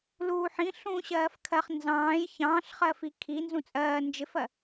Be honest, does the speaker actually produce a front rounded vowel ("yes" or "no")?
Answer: no